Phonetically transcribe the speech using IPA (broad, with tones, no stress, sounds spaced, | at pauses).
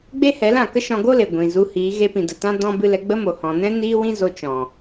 ɡ͡b e˦ h ɛ˨˦ l ã˦˨ k ə˦ ʃ ɔ̃˧ ɡ o˦ l e˨ ɡʷ ĩ˨ z u˧ h iː˨˦ ɣ e˧ p ĩ˨ d ə˨ t ã˦ d ɔ̃˦ b ɨ˧ l ɛ˧ ɡ͡b ə˦ m o˨ h ɔ̃˨ n ɛ̃˦ n iː˦ w ĩ˦ z o˧ t͡ʃ ɔ̃˨